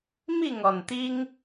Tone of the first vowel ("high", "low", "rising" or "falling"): falling